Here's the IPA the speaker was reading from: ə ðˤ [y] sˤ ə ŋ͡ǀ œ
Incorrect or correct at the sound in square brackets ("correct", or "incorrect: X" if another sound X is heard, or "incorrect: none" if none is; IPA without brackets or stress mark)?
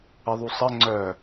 incorrect: u